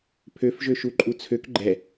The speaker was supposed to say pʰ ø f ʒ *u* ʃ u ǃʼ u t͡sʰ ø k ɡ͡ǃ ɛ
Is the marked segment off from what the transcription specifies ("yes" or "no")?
yes